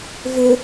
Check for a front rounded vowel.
present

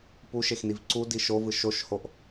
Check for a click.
present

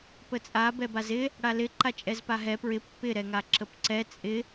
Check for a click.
present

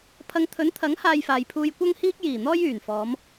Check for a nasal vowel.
absent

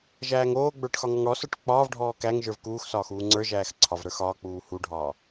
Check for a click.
present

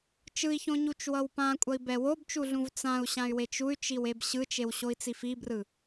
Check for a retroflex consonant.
absent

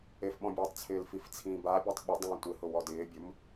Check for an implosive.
present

